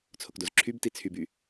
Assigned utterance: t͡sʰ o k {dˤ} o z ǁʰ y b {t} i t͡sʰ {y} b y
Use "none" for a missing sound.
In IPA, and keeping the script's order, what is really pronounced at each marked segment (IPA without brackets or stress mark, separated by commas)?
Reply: d, t, y